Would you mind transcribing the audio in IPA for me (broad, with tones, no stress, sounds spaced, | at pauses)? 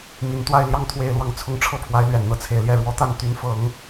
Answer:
m i˧˥ n t̪ w a˥˧ ɪ̯ l j ɑ˥˧ ŋ t̪ʰ w e˥˧ ɪ̯ l w ɑ˥˧ ŋ t͡sʰ ʊ˥˧ ŋ ʈ͡ʂʰ ɤ˥˩ pʰ w a˧˥ ɪ̯ l ɥ ɛ˨˩ n n̪ ɤ˧˥ t͡sʰ e˨˩ ɪ̯ l j ɛ˥˩ ɻ w ɔ˧˥ t̪ a˥˩ n t̪ y˧˥ n f ɤ˨˩˦ ŋ